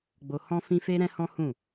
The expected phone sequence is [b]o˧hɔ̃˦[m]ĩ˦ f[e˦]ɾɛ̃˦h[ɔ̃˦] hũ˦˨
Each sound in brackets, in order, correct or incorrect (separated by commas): incorrect, incorrect, correct, correct